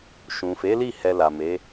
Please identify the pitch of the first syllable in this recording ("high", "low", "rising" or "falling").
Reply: low